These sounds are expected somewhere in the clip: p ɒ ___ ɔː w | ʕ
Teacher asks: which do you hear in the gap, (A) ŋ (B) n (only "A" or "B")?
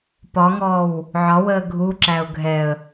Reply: A